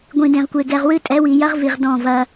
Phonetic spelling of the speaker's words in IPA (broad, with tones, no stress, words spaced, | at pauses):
ɡʷĩ˨dẽ˨ʁkʷe˨ ɡɛ˨ʁwɨ˦ tʼɛ˨˦wi˨jɐ˦ʁvi˨ʁ dɔ̃˦˨vɐ˦